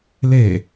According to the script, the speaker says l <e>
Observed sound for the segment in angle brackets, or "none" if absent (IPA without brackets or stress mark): e